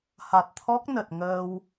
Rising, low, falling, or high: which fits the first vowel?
low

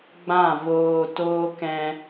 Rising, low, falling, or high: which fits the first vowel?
falling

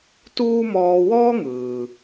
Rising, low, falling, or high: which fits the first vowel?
high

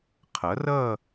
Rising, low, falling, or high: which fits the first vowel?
rising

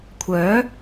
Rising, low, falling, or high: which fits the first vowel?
rising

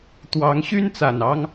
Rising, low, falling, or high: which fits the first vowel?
rising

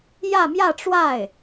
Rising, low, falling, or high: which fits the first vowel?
falling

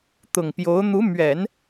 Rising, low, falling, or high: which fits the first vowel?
low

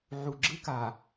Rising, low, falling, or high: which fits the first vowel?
low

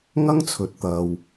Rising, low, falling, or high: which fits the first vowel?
high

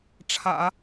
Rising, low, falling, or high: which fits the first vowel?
low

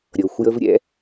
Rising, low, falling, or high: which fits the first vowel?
low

